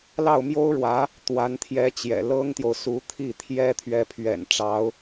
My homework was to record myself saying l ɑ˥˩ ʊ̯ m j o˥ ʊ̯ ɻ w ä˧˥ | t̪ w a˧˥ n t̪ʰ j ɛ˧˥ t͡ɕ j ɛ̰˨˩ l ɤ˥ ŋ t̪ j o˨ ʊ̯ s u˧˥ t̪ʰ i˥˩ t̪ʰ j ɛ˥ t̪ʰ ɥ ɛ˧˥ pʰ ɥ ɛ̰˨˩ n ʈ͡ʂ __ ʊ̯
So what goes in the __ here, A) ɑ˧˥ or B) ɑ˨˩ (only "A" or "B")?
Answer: A